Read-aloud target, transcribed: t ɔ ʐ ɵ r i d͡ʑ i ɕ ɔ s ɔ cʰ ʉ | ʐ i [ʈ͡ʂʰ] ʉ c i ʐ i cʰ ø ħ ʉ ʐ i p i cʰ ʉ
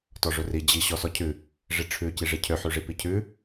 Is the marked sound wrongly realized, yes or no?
no